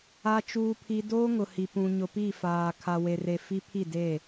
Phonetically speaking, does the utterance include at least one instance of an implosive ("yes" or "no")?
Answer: no